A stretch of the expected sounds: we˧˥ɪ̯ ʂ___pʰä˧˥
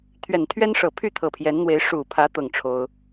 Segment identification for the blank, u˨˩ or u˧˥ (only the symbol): u˨˩